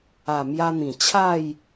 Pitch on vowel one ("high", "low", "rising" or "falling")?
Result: low